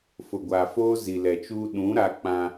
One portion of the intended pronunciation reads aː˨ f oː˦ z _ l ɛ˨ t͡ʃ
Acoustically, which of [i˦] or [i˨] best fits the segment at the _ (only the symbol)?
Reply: i˨